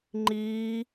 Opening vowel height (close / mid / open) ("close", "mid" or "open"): close